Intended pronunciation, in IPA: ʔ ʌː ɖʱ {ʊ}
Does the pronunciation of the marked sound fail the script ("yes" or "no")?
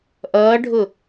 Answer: no